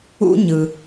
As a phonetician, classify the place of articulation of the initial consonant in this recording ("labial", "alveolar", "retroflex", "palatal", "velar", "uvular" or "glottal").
palatal